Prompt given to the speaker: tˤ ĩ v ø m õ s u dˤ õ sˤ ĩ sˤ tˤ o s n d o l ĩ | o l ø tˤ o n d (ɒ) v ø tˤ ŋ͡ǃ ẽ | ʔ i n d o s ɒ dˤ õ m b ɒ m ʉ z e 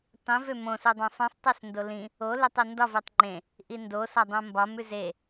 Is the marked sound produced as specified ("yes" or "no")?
yes